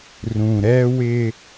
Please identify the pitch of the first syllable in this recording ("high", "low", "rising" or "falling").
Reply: low